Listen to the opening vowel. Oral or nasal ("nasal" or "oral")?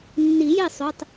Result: oral